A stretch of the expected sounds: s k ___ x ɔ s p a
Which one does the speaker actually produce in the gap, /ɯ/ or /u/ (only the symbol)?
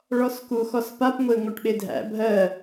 u